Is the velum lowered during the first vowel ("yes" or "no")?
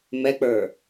no